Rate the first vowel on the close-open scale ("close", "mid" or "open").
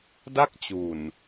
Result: open